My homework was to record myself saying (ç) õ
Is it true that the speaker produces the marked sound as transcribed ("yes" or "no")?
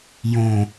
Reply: no